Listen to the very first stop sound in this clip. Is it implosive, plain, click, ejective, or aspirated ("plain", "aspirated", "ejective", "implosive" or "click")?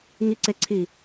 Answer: click